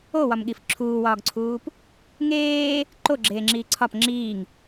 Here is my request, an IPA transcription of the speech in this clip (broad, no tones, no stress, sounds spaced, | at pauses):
o w ɒ m ɠ i f ǁʰ uː w ɒː ɡ ǀʰ uː p | ŋ eː | ǃ o ɡ͡ǁ eː ŋ͡ǁ iː ǀʰ ɒ p ŋ͡ǁ iː ŋ